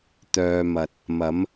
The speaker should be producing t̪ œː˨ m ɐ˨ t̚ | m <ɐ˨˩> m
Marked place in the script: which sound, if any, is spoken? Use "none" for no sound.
ɐ˨˧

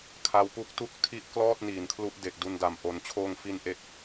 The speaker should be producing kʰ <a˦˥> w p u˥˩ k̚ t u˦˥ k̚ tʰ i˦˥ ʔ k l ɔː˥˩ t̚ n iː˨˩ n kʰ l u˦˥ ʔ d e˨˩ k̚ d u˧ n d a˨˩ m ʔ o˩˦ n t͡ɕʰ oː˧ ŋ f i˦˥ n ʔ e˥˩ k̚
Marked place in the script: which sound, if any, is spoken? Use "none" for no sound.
a˧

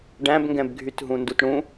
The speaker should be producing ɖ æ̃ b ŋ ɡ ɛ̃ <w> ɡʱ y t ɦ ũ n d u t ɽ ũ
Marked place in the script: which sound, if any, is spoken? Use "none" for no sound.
b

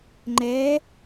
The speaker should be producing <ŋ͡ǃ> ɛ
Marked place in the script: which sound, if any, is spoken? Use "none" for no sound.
ŋ͡ǃ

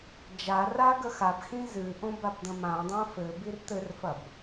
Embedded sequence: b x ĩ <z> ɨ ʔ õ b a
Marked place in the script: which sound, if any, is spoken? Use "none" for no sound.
z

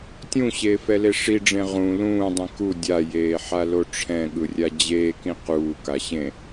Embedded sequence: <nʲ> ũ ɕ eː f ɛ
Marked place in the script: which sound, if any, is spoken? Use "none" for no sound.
tʲ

